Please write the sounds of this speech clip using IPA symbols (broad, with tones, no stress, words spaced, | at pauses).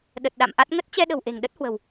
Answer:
ɗə˨˩t̚ɗa̰˧˨mʔa˦˥t̚ ŋə˦˥t̚t͡ɕɛ˧ɗə̤˨˩w ʔe̤˨˩ŋɗə˦˥t̚hwə̤˨˩w